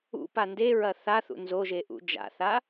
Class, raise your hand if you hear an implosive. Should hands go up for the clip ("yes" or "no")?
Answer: no